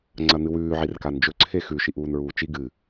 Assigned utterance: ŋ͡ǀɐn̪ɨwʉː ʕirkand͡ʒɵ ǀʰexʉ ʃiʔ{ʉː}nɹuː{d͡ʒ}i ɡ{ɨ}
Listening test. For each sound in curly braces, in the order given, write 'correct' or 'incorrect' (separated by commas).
incorrect, incorrect, correct